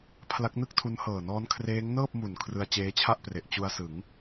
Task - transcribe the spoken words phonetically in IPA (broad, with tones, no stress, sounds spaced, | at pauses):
pʰ l a˦˥ k̚ n ɯ˥˩ k̚ tʰ u˦˥ n h ɤː˨˩ n ɔː˦˥ n kʰ r eː˦˥ ŋ n ɤː˥˩ p̚ m u˨˩ n kʰ r ɯ˧ a̯ t͡ɕ eː˦˥ t͡ɕʰ a˥˩ ʔ p r e˨˩ ʔ t͡ɕ u˧ a̯ s ɯ˩˦ ŋ